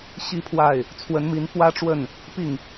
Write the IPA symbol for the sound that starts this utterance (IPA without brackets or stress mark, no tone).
ɕ